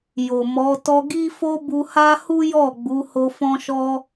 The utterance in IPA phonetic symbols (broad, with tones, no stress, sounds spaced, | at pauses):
j o˨ m ɔ˨˦ t ɔ˧ ɡ i˦ f o˦ b u˧ h a˦ h u˦ j ɔ˦˨ ɡ͡b u˨˦ h o˧ f ɔ̃˦ ʃ ɔ˦